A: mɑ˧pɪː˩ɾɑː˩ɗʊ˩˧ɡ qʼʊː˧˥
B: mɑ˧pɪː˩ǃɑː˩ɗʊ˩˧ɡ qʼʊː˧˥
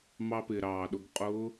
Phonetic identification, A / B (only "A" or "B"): A